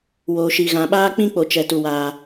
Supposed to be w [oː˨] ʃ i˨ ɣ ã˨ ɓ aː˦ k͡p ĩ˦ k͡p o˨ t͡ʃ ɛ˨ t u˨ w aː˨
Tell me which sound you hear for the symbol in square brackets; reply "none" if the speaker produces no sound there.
oː˨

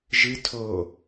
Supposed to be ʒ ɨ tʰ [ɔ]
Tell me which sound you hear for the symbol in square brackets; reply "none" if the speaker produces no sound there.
o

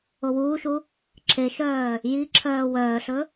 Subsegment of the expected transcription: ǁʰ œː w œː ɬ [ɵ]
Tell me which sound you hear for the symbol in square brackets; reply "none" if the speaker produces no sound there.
ɵ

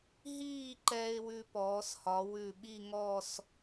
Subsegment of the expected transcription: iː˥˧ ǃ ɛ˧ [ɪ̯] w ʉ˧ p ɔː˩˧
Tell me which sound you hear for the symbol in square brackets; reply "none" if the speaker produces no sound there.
ɪ̯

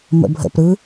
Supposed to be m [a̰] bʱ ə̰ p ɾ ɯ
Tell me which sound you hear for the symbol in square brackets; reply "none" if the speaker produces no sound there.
ə̰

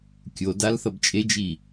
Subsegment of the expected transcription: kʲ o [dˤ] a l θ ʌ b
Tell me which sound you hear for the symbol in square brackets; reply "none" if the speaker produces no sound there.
d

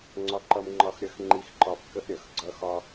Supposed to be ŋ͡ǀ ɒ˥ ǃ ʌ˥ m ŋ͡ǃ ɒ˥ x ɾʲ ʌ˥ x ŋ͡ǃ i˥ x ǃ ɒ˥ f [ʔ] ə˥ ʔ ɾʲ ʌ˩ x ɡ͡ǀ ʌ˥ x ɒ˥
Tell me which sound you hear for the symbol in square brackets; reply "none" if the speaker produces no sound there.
k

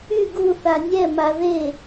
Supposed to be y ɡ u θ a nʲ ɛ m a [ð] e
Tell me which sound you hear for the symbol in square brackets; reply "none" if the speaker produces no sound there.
ð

